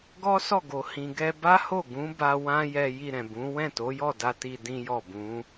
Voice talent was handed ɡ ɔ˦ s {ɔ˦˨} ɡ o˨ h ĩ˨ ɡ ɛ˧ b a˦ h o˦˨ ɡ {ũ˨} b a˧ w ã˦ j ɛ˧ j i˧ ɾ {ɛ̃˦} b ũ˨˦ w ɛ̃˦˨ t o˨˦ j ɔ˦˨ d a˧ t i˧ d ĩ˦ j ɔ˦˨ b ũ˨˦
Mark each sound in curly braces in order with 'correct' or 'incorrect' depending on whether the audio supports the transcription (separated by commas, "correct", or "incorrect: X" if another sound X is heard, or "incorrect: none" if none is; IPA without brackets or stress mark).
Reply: correct, incorrect: ũ˨˦, incorrect: ɛ̃˨